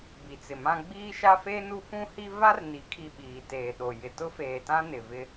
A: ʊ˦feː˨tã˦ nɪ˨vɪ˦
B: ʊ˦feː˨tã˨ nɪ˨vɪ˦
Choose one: A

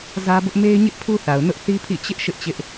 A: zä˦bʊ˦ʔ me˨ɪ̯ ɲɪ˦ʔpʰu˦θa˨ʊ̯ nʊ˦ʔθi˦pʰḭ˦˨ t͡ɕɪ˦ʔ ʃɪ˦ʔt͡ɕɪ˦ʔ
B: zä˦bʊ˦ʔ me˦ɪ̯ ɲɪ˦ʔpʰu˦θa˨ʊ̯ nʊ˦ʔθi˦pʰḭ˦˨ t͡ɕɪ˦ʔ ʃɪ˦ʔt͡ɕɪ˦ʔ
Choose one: B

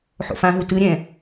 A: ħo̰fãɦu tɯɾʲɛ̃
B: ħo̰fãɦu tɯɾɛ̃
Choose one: A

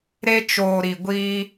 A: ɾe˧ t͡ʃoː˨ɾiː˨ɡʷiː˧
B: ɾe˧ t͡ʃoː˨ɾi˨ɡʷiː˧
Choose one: B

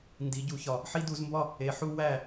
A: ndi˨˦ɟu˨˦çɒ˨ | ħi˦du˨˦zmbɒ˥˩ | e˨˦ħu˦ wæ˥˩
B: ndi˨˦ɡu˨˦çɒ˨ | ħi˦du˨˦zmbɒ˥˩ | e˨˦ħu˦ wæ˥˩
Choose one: A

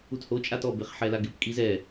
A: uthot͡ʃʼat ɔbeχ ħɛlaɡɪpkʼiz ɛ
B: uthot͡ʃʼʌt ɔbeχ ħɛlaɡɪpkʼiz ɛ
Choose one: A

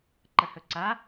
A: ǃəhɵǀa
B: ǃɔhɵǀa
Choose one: A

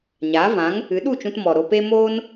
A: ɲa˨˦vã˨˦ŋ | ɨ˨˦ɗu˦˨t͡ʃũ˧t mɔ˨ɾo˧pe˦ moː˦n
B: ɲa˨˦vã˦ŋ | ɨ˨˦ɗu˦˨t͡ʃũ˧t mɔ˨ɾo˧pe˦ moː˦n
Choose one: A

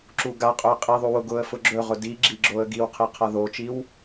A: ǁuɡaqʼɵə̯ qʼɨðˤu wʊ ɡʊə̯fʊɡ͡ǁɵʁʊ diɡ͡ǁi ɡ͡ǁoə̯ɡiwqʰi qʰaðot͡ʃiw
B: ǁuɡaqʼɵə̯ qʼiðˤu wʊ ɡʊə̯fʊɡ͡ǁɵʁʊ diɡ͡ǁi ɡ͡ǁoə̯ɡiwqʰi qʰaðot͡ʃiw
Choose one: B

